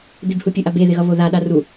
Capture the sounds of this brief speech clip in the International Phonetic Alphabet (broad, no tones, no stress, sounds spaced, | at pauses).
d̪ ɪ b h u pʲ u ʔ a b e ð ɪ ɣ ʌ β o ð a ɗ a r u